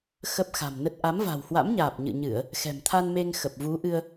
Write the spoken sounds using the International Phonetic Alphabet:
xə˦˥p̚xa̤˨˩mnə˦˥t̚ ʔa˨˦mva̤˨˩whwa̰˧˥mɲaː˨˩p̚ ɲɨ̰˧˨ɲɨ˧˩˨ə̯ | xɛ̤˨˩mt̪ʰa˧nme˧ŋ xə˨˩p̚vu˨˦ʔɨ˧ə̯

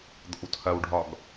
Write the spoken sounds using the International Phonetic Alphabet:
d̪ɔ̰wtʰɐwɖʱɒɡ

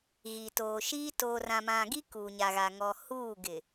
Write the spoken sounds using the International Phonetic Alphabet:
ɣi˨toː˨ʃiː˦ toː˨rã˨mã˨ɡi˦ kuː˨ɲa˨ɣa˨ ŋɔ˨ huː˦˨ɡɪ˨

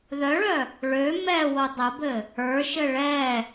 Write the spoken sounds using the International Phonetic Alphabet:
ðœɭœ | ɭø mɛwo dˤəbɘ | ə˞ʃɘ ɭɛ

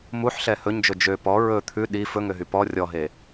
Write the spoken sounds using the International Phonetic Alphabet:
muħɬɛ hɵɲd͡ʒɵ d͡ʒø pɔ ɹɵ t̪ʰʉ ɗi fɵŋøɦy pɔ rʲɔɦe

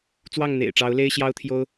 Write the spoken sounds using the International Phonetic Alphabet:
t͡swɑ˥˨ŋn̪ḛ˨˩ɪ̯ʈ͡ʂɑ˨˦ʊ̯le˦ɪ̯ ɕjɑ˦ʊ̯t̪ʰjo˦ʊ̯

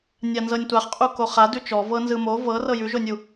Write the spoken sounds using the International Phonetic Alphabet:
nʲanzɤnʲtʷaχqʼu koχa dʉt͡ʃɔ vɤnzɯmo vɤ rɤjʉʒonʲu

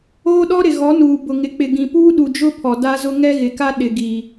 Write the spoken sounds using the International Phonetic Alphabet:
oː˦ɗɔ˦ ɾɪ˨ɣɔ˨˦nuː˨ bʊ˨ŋɪ˨k͡pɪ˨ ɡĩ˨ puː˦ɗu˨d͡ʒʊ˦ pʰɔ˨da˦zʊ˦ ŋɛ˦ɣɪ˨ka˦ ɗɪ˨ɡiː˨

